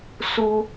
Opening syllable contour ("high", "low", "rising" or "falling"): high